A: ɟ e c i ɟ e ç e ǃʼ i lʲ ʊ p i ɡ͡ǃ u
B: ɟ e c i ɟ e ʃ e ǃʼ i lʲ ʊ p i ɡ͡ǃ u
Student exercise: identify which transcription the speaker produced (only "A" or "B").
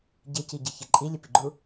A